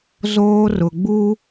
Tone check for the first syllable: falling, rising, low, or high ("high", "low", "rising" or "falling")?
high